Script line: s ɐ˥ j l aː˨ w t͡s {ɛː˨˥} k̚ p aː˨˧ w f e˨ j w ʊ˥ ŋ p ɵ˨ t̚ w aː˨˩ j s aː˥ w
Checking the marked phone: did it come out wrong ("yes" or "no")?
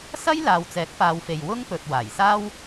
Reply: no